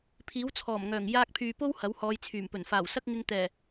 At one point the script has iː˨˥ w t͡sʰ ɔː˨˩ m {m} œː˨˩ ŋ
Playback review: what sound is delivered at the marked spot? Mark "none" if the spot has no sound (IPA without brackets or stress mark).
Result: ŋ